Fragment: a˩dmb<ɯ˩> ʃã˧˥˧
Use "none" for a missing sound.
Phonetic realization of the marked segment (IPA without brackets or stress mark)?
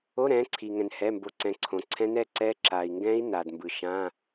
ɯ˩